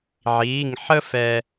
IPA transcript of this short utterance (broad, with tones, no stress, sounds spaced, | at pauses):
ʕ iː˧˥˧ ŋ ħ ə˥ f ɛː˧